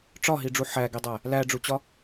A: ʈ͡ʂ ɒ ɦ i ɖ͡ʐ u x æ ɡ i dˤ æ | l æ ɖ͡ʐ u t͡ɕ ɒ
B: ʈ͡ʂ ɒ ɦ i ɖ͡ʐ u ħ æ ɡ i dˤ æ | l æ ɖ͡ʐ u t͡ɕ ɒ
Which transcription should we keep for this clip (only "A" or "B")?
B